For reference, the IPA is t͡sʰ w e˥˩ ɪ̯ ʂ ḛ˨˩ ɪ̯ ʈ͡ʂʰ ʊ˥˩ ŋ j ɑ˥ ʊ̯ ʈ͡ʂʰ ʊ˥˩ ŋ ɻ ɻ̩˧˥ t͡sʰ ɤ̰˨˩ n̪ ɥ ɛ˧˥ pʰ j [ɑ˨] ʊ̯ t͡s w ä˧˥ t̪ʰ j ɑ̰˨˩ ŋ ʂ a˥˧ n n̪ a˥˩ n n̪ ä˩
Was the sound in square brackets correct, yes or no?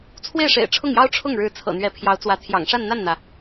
no